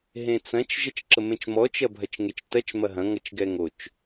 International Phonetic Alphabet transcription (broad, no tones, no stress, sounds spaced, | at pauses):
ɦ ẽ t͡s ɐ̃ t͡ʃ ʒ ʌ t͡ʃ ǁ ə m ẽ t͡ʃ m ɔ t͡ʃ ɐ bʱ ɐ t͡ʃ ŋ e t͡ʃ t ɐ t͡ʃ m ɐ ɦ ɐ̃ ŋ ʌ t͡ʃ ɡ ɛ ŋ o t͡ʃ